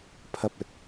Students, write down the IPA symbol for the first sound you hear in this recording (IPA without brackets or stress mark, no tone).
pʰ